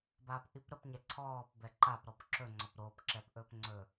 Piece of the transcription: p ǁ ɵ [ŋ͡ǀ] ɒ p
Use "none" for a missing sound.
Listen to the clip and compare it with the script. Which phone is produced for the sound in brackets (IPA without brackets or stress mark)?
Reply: ŋ͡ǀ